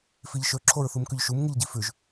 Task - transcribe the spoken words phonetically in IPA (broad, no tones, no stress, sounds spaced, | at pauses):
f i ʎ ʃ ɵ ǁʰ o ɹ θ u m k ʉ ʎ ʃ u m ŋ ɨ ʎ ɟ i f ʉ ʒ